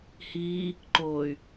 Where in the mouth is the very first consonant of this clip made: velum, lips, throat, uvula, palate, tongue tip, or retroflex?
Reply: throat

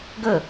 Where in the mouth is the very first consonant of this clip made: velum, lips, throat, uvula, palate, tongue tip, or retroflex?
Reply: velum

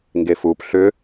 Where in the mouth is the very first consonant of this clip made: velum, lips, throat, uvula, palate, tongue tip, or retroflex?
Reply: velum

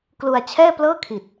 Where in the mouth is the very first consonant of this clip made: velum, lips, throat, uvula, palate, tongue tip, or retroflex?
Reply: velum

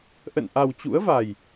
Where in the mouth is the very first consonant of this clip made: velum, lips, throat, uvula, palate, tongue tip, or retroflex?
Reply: throat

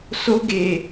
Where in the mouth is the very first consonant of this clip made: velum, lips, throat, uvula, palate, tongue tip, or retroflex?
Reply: tongue tip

